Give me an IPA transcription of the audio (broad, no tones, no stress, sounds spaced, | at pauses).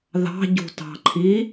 ð ɑ̤ ɟ ṳ t ɑ̤ ǃʰ i